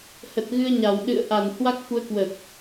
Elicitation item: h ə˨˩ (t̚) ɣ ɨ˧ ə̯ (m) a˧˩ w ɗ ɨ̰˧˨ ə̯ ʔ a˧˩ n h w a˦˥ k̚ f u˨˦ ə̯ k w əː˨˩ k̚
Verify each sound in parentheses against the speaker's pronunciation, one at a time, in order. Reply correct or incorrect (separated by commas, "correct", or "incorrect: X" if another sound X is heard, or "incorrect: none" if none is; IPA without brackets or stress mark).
correct, incorrect: ɲ